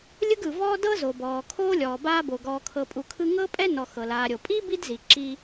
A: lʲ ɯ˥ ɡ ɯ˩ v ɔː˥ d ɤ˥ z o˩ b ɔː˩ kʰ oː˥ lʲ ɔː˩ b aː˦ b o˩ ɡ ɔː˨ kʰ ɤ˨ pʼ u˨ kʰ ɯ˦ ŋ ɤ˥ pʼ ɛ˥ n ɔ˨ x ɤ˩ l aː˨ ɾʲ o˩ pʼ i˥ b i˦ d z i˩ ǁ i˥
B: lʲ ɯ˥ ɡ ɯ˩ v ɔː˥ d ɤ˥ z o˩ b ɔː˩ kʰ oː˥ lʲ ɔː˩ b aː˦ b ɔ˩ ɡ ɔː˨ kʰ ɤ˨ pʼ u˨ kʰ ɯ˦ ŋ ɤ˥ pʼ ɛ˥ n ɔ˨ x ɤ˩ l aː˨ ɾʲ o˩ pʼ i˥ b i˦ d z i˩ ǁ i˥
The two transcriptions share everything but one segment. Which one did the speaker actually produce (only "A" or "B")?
A